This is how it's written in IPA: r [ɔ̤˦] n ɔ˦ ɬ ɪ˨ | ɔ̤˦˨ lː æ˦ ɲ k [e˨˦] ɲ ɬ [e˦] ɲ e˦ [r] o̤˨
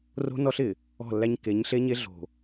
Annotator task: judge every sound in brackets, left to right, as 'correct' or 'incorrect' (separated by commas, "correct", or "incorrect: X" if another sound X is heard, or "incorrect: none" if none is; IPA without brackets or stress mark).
incorrect: o̤˦, correct, correct, incorrect: ɮ